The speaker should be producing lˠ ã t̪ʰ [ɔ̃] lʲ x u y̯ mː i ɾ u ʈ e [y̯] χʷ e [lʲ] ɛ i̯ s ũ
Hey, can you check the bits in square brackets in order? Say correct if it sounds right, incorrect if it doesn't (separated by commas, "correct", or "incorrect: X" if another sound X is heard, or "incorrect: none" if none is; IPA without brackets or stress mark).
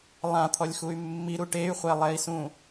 incorrect: ɔ, correct, incorrect: lˠ